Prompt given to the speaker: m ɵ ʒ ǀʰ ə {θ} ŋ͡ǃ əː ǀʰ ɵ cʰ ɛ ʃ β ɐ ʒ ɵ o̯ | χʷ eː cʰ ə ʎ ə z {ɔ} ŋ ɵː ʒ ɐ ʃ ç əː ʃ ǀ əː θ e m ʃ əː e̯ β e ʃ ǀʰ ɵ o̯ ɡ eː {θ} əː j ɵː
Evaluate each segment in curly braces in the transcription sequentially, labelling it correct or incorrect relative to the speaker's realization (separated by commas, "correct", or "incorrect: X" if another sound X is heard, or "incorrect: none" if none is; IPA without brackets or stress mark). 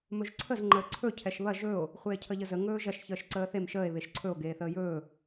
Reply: incorrect: z, incorrect: ə, correct